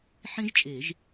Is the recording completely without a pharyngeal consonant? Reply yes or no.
no